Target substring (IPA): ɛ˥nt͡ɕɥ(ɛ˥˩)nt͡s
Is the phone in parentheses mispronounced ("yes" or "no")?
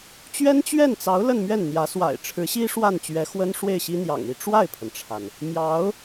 no